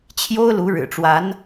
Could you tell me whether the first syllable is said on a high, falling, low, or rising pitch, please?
high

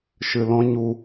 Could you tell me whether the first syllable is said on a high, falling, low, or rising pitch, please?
low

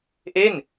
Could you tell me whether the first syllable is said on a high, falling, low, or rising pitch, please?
falling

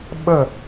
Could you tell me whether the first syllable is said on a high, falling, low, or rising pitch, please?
falling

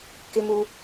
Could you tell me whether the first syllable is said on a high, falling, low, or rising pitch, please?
high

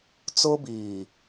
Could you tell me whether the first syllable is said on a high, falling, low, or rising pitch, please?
high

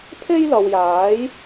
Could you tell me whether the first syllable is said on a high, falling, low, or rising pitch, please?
high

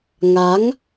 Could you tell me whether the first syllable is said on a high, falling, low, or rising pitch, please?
rising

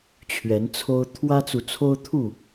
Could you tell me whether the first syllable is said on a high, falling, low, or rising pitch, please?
rising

